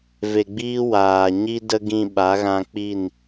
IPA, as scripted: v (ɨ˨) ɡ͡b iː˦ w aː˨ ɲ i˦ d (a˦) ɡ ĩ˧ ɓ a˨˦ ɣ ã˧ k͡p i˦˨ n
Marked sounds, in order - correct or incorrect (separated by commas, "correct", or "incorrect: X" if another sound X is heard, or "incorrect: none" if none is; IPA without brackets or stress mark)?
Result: incorrect: e˨, incorrect: ə˦